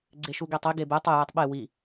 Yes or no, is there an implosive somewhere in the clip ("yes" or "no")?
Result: yes